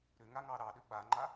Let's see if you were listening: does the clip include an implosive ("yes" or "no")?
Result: yes